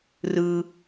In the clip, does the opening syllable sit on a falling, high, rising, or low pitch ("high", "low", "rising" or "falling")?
low